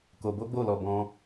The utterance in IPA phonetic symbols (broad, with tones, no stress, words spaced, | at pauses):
ko˧bo˦ɡ͡bo˦˨lɔ˧ bɔ̃˦